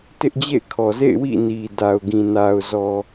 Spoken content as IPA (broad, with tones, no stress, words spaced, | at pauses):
tɪ˦ʔd͡ʑḛ˦˨ɪ̯kʰɔ˨zḛ˦˨ɪ̯ wḭ˦˨ni˨ da˨ʊ̯ɡĩ˨ na˨ʊ̯zɔ˨